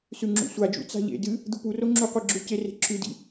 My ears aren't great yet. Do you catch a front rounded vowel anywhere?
no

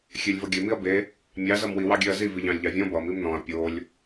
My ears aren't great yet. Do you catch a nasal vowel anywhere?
yes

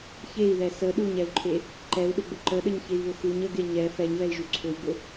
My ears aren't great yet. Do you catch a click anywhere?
yes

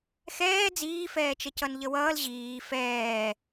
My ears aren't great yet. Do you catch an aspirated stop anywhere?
no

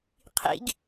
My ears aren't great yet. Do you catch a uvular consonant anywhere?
yes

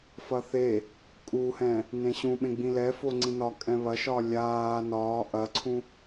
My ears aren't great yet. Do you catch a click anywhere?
yes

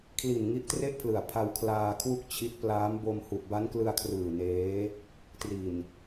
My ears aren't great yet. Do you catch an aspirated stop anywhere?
yes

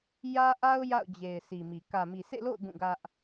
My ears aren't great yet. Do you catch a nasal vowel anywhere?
yes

